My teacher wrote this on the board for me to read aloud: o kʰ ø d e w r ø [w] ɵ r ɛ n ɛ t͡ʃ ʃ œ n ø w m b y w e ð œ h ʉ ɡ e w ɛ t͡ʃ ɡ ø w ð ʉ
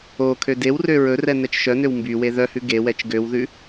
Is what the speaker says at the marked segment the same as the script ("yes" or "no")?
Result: no